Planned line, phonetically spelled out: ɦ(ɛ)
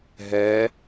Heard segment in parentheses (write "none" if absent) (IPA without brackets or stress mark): ɛ